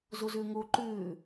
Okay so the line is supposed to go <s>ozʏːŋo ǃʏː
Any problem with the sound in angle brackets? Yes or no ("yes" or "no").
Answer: yes